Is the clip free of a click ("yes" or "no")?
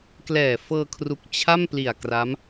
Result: yes